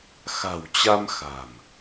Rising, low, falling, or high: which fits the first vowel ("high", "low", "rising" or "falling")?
low